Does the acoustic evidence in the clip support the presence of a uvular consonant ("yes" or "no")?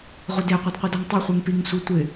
yes